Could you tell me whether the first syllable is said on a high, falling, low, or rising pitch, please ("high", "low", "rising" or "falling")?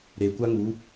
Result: low